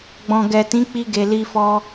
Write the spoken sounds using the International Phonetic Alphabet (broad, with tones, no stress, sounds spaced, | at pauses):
ɡ͡b ɔ̃˨ ɡ ɛ˨ t ĩ˨˦ k͡p i˧ ɡ e˨ l i˧ f ɔ˧